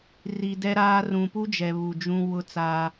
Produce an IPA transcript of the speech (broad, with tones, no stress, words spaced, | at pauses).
ri˨ dɛ˦ɾaː˦ rũ˨pu˦d͡ʒɛ˨ βu˨d͡ʒũ˦ wʊ˦t͡sa˦